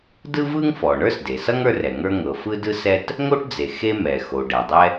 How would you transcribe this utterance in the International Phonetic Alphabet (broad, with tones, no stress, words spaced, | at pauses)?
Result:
dɯ˥vɯ˥ŋfɔ˩ ɳə˞˥sde˩sʌ˥ŋ ə˞˥rɛ˩ŋə˞˥ ŋɤ˩fɯ˥ dɯ˥sɛ˥t | ŋo˥ʈd͡ze˩ xe˥ mɛ˩xo˩ ɖɛ˩dˤɛ˥